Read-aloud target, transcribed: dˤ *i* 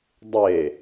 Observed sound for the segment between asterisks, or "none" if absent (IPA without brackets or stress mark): e